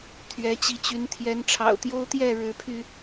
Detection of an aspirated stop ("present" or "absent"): present